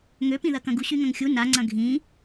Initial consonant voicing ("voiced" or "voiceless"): voiced